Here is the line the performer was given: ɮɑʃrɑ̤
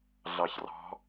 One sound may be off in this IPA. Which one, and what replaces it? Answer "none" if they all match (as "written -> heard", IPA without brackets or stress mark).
ʃ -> ç